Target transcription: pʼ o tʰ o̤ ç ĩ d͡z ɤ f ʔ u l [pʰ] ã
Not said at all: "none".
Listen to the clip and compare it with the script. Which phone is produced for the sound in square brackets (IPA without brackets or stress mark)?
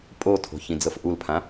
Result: pʰ